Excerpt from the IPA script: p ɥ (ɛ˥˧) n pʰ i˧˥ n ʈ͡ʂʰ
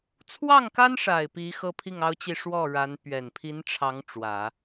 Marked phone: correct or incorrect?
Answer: incorrect